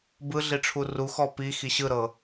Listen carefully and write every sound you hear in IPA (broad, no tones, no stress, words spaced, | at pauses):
bɯɮiʈ͡ʂʰu ruxɔ pixi ɕɯɾɤ